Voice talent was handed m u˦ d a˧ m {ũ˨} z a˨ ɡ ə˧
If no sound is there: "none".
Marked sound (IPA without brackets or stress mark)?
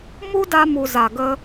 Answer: u˨